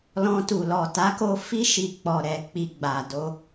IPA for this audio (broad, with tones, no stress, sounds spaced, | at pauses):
l ɔ̃˧ t u˨ l ɔ˨ t a˨˦ k o˧ f i˧ ʃ i˨ k͡p ɔ˨ ɾ ɛ˨ k͡p i˨ ɡ͡b a˨ d o˧